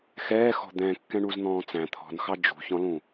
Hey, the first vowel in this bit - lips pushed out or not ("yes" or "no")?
no